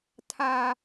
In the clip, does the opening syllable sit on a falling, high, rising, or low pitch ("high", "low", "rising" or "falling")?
high